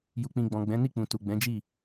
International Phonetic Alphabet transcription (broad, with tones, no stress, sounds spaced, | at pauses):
j u˨ k͡p ĩ˨ ɡ͡b ɔ̃˨ ɡ͡b ɛ̃˨˦ n i˦˨ k͡p ũ˨ t u˨ ɡ͡b ɛ̃˨˦ d͡ʒ i˦˨